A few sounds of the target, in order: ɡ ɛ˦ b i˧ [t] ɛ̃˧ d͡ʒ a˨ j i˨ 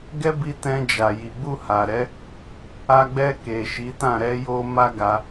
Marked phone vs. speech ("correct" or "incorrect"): correct